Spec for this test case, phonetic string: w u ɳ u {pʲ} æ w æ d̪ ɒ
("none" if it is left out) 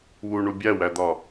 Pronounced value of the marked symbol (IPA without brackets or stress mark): bʲ